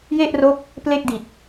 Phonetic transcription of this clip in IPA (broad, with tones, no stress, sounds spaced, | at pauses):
j e˥˩ ʔ r o˦˥ k̚ | p l e˥˩ k̚ d i˨˩ t̚